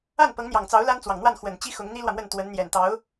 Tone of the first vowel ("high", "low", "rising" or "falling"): falling